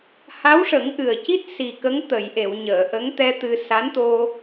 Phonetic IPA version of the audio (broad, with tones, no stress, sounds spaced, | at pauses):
h a˧˥ w ʂ ə˨˩˦ ŋ ʔ ɨ˨˩ ə̯ c i˦˥ t̚ s i˨˩ k ə˧˥ ŋ t̪ ə˨˩˨ j ʔ e˨˩˨ w ɲ əː˨˩˨ ʔ ə˧˥ ŋ t̪ ɛ˧ t̪ ɨ˧ s a˧˥ n t̪ o˧